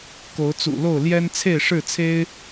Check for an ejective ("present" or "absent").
absent